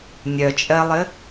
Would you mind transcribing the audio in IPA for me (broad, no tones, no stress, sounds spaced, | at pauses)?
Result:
nʲ œ t͡ʃʼ ɜ lˠ ɘ